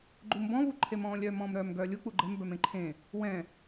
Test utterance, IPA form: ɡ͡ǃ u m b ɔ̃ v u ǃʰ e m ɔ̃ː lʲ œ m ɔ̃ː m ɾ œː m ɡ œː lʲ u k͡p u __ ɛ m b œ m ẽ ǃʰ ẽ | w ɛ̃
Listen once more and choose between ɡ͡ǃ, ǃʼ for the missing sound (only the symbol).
ɡ͡ǃ